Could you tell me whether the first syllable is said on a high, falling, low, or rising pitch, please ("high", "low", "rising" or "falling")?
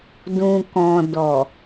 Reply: low